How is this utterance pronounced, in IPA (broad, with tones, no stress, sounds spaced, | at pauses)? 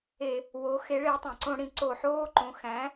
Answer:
e˧˩˧ | w o˩˥ x e˩˥ ɭ e˩˥ tˤ ẽ˩ ǀ õ˧˩˧ ɽ ĩ˩ ǀ o˧˩˧ ħ oː˧˥˧ ǃ õ˩˥ x æ̃˩˥